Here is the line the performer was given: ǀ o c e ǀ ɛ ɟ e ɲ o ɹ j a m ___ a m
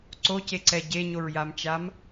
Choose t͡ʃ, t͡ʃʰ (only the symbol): t͡ʃ